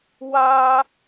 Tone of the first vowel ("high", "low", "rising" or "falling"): high